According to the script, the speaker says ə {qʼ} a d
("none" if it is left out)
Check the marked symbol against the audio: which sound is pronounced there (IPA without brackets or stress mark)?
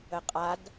qʼ